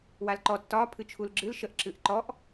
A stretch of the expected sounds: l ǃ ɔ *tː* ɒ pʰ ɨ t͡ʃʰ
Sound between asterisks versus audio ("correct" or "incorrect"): correct